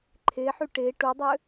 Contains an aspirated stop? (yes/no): yes